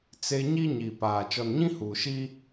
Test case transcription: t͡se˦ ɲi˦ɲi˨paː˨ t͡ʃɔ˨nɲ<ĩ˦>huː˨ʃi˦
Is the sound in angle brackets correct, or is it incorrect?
correct